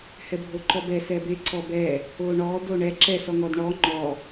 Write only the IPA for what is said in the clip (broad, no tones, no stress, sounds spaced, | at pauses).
h ɛ bʱ o ǃ ɔ b ɛ s ɛ b e ǀ ɔ b ɛ | o ɳ ɔ d o ɳ ɛ ǁ ɛ s ɔ ŋ ɔ d ɳ ɔ ŋ͡ǃ ɔ